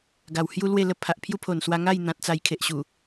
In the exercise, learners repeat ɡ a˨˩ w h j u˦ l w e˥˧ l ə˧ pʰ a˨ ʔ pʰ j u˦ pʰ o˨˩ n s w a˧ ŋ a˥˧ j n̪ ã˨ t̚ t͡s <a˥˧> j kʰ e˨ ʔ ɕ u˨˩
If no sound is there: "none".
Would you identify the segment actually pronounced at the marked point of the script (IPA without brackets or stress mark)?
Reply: a˨˩